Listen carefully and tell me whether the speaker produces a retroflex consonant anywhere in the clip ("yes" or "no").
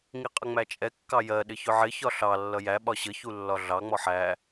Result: no